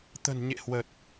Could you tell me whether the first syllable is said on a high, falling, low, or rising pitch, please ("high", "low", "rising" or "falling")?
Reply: low